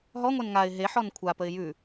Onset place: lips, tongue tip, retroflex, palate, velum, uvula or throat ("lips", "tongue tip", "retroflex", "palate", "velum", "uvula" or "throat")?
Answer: throat